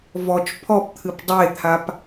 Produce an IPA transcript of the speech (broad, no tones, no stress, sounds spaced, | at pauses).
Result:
v ɔ t͡ʃ pʰ ɔ p t̪ʰ ɨ p dˤ e t̪ʰ a p